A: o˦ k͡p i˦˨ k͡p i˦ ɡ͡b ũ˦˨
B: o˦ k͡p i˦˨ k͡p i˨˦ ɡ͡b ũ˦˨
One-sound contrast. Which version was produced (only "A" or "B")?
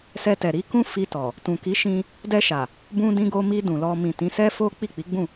B